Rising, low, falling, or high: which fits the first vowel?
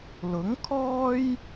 rising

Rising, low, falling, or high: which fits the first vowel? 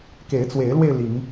rising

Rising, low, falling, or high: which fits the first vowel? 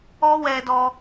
high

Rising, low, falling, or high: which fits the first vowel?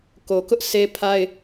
low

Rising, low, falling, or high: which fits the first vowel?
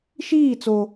falling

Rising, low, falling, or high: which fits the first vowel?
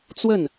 falling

